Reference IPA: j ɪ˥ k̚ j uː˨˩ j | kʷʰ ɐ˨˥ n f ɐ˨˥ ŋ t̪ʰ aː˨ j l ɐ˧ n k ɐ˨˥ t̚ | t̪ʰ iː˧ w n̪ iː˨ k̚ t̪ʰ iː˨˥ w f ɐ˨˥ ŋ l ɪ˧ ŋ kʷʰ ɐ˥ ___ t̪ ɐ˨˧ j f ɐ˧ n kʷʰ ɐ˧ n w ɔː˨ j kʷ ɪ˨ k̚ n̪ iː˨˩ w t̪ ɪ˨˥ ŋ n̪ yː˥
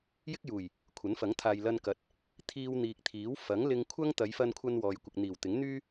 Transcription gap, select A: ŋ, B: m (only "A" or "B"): A